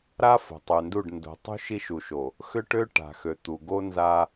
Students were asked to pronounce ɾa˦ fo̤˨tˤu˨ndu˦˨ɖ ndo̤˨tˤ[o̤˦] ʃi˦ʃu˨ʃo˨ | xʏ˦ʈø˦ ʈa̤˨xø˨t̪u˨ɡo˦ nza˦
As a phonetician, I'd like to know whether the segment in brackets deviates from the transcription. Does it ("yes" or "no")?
yes